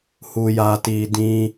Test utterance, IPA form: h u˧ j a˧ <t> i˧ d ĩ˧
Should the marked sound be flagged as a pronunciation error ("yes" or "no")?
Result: no